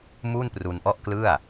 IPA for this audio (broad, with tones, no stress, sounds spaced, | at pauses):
m u˥˩ n p r u˧ n ʔ ɔ˥˩ ʔ k l ɯ˥˩ a̯